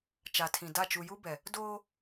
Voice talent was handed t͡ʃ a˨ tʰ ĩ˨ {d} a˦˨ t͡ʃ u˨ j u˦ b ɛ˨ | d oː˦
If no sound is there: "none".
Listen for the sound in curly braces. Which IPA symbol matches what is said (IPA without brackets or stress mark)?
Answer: d